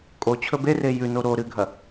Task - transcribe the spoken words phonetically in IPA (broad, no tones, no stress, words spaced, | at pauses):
kʼo t͡ɕʰɵbere jʉno ɾo ɾɨɡʱɐ